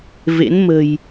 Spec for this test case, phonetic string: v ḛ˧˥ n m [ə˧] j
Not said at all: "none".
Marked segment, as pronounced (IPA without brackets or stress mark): ə̤˨˩